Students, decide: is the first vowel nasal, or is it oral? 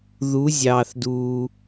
oral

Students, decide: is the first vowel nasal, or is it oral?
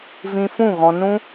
nasal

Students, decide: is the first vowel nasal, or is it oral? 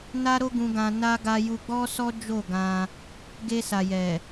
oral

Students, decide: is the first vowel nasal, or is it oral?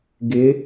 oral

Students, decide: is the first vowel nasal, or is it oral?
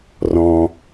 nasal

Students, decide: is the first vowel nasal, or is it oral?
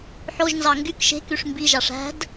oral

